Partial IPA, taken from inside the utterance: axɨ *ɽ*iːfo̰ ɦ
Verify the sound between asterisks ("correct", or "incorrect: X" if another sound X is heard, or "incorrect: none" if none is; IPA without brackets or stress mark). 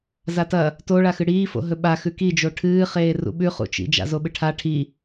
correct